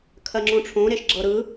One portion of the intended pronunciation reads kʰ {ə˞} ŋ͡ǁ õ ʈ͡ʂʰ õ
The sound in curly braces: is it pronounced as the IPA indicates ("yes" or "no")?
no